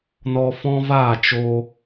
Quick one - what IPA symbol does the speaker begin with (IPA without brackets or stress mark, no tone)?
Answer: n